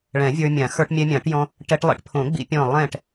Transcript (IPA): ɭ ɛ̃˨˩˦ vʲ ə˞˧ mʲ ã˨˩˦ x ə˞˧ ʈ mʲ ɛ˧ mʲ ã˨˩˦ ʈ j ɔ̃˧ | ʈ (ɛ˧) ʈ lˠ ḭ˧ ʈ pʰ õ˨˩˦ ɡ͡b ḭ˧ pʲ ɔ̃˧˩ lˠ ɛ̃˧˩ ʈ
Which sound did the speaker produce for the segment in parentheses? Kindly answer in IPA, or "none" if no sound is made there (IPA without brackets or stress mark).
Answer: ɛ˧